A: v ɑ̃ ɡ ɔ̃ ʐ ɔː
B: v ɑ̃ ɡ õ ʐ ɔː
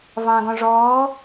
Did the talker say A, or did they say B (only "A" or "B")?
A